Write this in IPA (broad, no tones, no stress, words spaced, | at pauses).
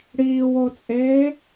ɽiːwot͡sʼeː